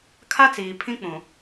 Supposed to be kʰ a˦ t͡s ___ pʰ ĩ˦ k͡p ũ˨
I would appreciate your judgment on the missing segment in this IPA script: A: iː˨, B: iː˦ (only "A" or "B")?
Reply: A